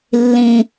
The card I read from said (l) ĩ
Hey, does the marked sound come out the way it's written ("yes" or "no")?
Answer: no